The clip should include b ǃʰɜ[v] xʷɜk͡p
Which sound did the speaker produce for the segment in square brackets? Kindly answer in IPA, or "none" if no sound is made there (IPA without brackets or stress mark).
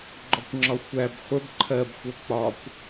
b